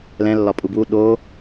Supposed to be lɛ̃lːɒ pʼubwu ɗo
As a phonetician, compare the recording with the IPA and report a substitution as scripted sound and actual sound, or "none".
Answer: none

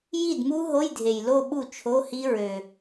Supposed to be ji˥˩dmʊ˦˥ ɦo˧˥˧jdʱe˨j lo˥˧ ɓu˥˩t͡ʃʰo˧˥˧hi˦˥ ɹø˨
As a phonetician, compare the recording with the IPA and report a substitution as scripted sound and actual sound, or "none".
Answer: ʊ˦˥ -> u˦˥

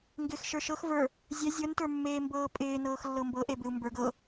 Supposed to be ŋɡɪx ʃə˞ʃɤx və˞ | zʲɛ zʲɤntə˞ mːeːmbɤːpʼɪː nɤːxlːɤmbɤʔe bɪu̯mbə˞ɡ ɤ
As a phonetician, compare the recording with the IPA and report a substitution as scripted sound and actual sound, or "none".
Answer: none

